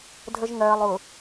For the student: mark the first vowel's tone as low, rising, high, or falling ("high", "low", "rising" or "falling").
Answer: low